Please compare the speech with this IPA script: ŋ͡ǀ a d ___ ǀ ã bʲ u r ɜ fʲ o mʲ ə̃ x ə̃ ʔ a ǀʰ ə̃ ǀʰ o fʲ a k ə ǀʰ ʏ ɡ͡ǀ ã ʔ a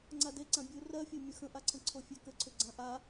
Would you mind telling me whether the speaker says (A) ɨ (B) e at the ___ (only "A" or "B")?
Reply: B